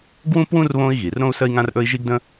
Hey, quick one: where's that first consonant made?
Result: velum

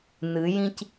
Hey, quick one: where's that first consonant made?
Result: tongue tip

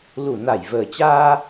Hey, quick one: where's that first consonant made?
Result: tongue tip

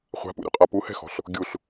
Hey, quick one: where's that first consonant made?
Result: uvula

